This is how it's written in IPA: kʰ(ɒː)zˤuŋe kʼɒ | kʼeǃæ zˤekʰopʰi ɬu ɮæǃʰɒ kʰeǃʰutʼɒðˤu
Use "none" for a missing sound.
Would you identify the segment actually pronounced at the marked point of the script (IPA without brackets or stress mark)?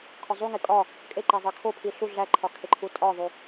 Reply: ɒ